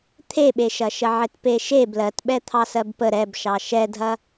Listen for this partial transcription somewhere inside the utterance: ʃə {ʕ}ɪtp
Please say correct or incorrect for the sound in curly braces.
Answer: correct